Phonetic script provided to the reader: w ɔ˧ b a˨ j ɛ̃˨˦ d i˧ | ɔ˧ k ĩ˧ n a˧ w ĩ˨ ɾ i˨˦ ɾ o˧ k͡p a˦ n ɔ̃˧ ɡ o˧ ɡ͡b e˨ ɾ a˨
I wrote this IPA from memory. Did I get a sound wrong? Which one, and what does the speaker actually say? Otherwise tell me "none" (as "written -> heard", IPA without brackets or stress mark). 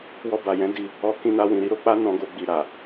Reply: e˨ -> i˨